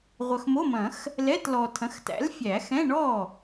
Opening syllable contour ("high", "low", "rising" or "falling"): low